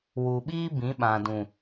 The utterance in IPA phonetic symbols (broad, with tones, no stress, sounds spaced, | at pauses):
w u˨ ɓ iː˧ b ĩ˨˦ ɓ ã˨ d ũ˨